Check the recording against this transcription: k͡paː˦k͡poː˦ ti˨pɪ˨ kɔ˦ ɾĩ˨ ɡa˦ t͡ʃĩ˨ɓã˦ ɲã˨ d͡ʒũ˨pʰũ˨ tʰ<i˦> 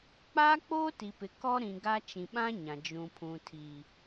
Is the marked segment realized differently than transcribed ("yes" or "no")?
yes